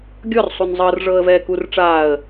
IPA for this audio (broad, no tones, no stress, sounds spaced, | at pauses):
ɡʲ ɔ r sˤ u n zˤ ɤ r ʐ ɤː ə̯ v ɛː k u r ʈ͡ʂ aː ə̯